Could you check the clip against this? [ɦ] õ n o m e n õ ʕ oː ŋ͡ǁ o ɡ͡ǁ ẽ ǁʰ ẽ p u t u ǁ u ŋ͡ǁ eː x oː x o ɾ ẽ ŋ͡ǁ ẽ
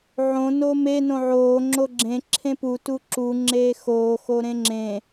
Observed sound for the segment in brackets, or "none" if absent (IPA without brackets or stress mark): ʕ